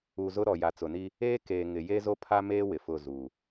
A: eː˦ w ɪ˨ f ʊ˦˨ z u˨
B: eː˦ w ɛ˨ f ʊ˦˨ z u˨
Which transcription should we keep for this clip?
A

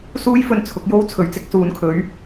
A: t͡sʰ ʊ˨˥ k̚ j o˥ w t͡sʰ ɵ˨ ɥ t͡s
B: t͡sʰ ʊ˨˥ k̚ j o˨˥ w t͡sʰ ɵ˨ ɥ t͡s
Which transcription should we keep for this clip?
A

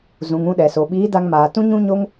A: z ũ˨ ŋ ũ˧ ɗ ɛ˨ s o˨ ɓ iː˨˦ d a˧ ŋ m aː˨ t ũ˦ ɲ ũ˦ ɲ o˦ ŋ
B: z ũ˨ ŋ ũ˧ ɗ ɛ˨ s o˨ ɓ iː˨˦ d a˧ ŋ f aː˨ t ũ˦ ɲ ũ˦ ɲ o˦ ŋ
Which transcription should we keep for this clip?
A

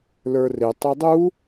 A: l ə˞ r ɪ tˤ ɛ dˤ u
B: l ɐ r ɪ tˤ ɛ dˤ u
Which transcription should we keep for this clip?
A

